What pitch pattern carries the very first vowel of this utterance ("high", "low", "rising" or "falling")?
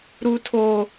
high